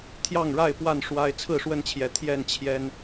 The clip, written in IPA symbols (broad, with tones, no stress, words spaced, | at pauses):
t̪ʰjɑ˥˨ŋɻa˥˨ɪ̯ pwa˥˨n ʂwa˦ɪ̯ t͡sʰɹ̩˥˨ʂwə˥˨nt͡ɕʰjɛ˨˦ t̪ʰjɛ˥˨nt͡ɕʰjɛ˦n